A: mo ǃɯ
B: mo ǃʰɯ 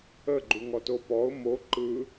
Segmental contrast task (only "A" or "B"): A